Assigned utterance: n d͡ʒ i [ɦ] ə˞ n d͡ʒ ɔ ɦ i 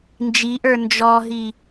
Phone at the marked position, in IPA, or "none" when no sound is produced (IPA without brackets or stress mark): ʔ